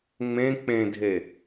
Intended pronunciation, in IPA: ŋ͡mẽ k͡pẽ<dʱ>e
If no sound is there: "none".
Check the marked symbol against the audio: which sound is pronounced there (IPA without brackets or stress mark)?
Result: dʱ